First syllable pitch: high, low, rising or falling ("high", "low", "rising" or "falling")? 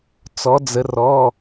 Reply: rising